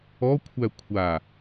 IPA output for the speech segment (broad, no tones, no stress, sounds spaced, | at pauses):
ɔ kʷʰ æ kʷʰ a